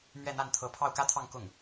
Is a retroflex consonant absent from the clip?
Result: yes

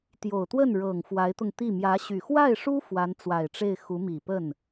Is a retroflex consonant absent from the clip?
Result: no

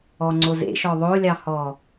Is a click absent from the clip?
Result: no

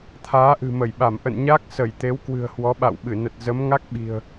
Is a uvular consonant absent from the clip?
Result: yes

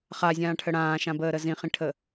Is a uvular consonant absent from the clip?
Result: no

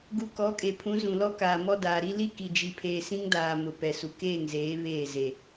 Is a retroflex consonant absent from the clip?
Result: yes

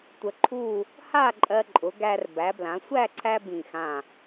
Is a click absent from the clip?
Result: no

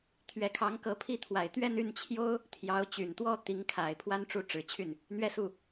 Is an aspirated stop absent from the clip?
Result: no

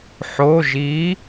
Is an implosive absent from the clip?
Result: yes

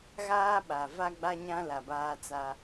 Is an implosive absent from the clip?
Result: no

